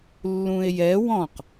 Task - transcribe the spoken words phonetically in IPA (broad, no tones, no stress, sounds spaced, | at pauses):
lː ũ e̯ j ɛ w ɔ̃ q